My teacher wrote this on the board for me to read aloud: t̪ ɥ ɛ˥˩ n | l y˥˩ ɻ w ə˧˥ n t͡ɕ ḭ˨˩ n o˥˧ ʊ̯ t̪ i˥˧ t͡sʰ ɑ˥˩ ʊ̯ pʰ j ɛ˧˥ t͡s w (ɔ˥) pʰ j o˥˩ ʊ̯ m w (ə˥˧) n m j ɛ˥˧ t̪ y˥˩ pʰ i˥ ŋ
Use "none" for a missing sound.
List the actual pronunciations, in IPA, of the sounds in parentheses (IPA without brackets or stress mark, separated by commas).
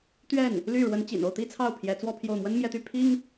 ɔ˥˧, ə˥